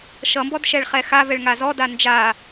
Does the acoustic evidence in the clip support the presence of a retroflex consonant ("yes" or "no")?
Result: yes